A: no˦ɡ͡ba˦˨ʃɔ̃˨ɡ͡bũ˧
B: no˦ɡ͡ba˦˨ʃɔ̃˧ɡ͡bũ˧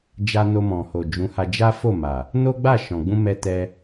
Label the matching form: A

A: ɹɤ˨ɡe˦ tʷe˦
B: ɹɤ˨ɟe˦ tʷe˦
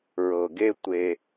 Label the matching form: A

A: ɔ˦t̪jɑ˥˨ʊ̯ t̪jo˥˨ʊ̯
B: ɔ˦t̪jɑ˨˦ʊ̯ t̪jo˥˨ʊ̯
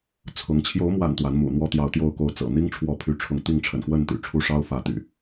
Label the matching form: B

